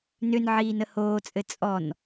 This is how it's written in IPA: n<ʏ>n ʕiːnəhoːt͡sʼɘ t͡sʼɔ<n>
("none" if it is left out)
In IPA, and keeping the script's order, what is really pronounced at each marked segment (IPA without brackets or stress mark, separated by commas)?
ʏ, n